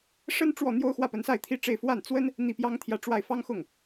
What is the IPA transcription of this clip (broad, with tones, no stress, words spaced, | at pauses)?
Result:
ʂə˥n ʈ͡ʂwɔ˥˩ n̪jo˥ʊ̯xwä˥˩pə˧˥nsa˥˩ɪ̯ t̪ʰi˥ʈ͡ʂe˥˧ɪ̯ fwa˥˩nt͡swə˥n | n̪i˥˩pjɑ˥ŋt̪ʰjä˥˧ʈ͡ʂwa˥˩ɪ̯ fɑ˥ŋxʊ˥˩ŋ